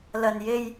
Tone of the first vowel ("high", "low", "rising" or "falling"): low